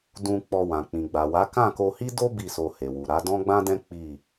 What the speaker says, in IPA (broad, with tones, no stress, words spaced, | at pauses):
dũ˧ k͡pɔ˧wã˨ k͡pĩ˨ɡ͡ba˨wa˨˦ kã˦˨ko˧hi˦do˦ bi˦˨so˧he˨wu˨ ɾa˨˦dɔ̃˦ɡ͡bã˦dɛ̃˦ k͡pi˦˨